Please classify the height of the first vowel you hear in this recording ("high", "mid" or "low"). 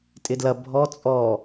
high